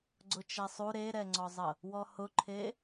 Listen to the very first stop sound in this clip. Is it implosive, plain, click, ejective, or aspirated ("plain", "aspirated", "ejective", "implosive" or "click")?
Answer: click